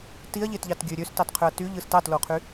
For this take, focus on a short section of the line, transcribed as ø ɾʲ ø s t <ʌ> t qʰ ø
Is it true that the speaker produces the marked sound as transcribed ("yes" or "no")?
no